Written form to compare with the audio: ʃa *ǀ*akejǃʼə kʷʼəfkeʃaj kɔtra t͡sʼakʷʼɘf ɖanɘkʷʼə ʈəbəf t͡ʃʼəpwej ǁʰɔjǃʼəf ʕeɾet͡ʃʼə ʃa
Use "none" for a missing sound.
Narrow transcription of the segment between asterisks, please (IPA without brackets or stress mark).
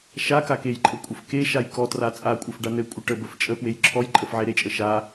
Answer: k